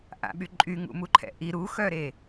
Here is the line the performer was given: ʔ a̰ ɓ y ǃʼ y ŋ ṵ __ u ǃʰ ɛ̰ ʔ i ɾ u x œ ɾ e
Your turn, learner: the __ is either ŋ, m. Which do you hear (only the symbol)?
m